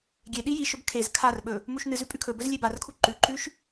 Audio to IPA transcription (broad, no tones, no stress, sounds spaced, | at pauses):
ɡʲ e ɗ i j i ʃ ɵ b kʰ e z kʰ a r ɓ ɵ | m u ʃ n ɨ z ʉ pʼ ʉ kʰ ɵ b ɵ z lʲ e b a r kʰ u ǃ ʉ ǃ ʉ ʃ